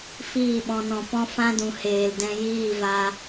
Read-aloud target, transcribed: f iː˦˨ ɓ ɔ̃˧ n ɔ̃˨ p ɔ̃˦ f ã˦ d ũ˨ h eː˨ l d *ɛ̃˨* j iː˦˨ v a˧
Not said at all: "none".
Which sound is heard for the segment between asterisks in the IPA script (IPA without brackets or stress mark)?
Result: ɛ̃˧